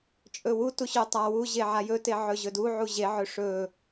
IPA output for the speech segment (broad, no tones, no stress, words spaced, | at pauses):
t͡ʃʼɵwu tuɕøtˤawu ʑeʕajɵ teʕɵʑɵdu ʕuʑe ʕɵʂɵ